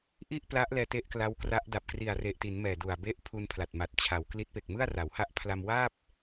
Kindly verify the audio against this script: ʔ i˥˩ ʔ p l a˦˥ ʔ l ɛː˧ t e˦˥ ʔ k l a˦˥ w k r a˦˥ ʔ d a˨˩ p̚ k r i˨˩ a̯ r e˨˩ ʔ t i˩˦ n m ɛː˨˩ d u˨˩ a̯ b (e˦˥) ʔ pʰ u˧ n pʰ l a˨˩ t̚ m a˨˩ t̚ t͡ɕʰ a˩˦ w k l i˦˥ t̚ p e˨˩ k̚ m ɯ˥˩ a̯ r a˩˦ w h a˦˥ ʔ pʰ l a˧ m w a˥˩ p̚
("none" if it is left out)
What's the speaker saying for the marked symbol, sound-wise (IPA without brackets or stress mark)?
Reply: e˦˥